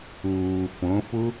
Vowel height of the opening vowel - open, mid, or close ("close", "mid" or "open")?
close